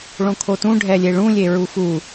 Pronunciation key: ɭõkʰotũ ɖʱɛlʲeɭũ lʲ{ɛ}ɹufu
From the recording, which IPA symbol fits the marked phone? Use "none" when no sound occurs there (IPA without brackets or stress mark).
e